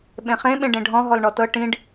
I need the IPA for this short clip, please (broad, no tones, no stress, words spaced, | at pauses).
ɓẽχẽ ɓẽɖẽɖʱɔ̃ ɦɔlɳɔtɤ ʈĩɖ